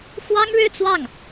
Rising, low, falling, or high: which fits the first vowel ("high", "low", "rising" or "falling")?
high